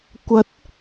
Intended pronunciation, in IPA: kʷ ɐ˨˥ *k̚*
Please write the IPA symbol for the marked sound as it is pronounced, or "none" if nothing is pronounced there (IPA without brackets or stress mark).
t̚